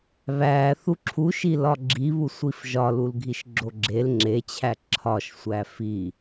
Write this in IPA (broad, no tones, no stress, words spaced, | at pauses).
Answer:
βæ θuǁʰuʃi lɒɡ͡ǁiβu sʷifʒɒlulɡʱiʃ ɡ͡ǁoɡ͡ǁel ŋ͡ǁet͡ɕʰæ ǁʰɒʃsʷæ fi